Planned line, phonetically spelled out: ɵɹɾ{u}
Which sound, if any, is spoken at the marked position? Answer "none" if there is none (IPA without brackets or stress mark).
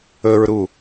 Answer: u